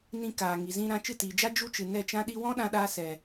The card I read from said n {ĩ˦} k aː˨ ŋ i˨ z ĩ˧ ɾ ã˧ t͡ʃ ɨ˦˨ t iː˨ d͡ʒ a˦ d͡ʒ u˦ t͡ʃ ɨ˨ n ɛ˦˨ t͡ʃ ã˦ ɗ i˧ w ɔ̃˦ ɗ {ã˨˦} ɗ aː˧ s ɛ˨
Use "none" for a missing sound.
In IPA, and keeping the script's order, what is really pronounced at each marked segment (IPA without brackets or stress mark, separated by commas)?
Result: ĩ˧, ã˧